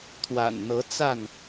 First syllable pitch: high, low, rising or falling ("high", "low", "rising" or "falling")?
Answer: low